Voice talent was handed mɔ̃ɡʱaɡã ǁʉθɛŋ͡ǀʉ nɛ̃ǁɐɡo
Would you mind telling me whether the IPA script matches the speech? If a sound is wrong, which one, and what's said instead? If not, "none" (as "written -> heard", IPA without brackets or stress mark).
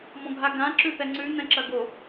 none